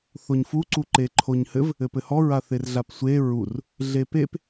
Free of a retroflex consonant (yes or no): yes